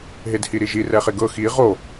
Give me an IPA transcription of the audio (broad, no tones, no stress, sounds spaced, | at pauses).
ɦ e d h i ɾ i ʒ i r ɛ χ e ɡ ɤ x i ʁ o